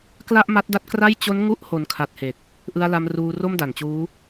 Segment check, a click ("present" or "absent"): absent